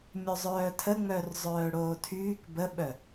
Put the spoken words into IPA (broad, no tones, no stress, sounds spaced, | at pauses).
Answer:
mʲ ɵ zˤ œː tʰ ə ŋ͡m œ r zˤ œː ɽ oː tʰ yː k b ə ɓ œ